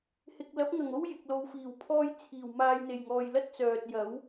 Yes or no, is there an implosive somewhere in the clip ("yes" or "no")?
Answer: no